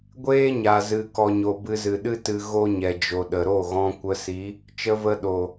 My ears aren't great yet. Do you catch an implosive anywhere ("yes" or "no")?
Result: yes